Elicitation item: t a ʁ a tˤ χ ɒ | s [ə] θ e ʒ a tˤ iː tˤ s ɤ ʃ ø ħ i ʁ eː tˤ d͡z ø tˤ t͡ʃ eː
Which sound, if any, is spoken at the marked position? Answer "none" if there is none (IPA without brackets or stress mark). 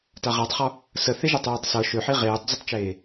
ə